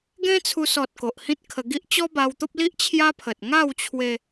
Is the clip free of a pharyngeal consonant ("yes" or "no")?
yes